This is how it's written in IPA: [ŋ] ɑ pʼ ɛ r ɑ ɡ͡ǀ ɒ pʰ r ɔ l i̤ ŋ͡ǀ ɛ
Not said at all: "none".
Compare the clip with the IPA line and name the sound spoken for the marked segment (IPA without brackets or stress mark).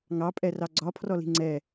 ŋ